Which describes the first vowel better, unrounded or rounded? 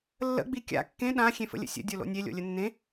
unrounded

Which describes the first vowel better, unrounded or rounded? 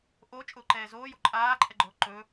rounded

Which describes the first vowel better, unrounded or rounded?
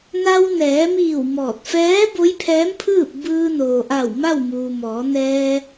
unrounded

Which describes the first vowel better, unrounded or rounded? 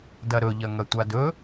unrounded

